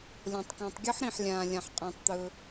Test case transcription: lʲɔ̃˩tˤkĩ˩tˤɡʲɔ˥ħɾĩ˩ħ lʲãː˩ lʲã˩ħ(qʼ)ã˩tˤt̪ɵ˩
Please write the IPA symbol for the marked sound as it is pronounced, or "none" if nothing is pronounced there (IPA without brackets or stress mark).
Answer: qʼ